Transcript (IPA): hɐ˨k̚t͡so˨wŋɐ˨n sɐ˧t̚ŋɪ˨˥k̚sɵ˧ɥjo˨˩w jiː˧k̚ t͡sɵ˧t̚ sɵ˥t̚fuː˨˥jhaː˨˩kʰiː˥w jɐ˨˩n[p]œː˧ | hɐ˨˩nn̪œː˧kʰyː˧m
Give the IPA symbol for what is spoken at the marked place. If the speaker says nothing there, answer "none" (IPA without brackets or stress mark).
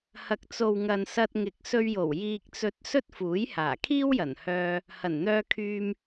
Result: h